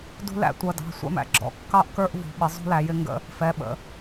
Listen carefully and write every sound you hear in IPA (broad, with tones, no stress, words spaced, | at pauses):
dṳ˦læ̰˦ tʷʌ˩˧˩dɑ̤˩˧˩ sʷæ̰˦mæ̰˦ ɡ͡ǁɔ̰˩˧kːɑ˦ʔ kə˞˦ʔ vṳ˩˧ɓɪ˩˧ zˤṳ˦læ˩˧jɪ˦ ŋɡə̰˦ | fɛ˩˧˩ɓə̰˩˧